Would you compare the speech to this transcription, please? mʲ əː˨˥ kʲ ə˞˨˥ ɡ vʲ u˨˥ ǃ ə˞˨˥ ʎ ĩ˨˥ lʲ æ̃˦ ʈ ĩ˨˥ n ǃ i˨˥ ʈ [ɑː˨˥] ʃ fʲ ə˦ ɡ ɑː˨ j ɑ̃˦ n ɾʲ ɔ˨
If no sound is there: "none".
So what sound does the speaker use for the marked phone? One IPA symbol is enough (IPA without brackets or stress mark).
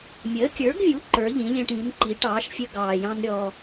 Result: ɑː˨˥